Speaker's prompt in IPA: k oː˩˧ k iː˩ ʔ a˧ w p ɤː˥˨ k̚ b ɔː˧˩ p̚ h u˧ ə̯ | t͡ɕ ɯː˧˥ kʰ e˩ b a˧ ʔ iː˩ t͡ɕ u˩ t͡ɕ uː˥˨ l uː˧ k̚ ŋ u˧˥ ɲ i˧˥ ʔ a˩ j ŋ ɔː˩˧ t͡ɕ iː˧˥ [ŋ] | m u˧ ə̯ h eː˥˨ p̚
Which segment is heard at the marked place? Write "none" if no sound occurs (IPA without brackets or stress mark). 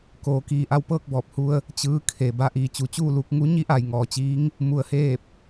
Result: ŋ